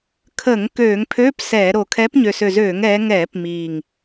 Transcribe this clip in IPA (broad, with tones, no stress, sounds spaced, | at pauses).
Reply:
kʰ əː˧˩˧ ŋ k øː˧˩˧ ŋ pʰ øː˧˥˧ p s ɛː˧˩˧ ɾ o˨˩ kʰ ɛː˨˦ p ɲ ø˨˩ s ø˨˩ z øː˧˩˧ ŋ ɛː˨˦ ŋ ɛː˧˩˧ p m iː˨˩ ŋ